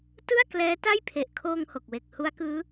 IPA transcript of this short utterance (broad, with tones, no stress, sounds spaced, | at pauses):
t ɯ˥˩ a̯ k l ɛː˦˥ t a˥˩ j pʰ e˨˩ ʔ kʰ oː˧ ŋ h o˨˩ k̚ w e˨˩ k̚ h u˦˥ a̯ k ɯː˦˥